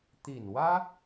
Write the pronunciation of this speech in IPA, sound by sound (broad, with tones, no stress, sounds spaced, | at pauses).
t̪ i˨˩ n w ä˥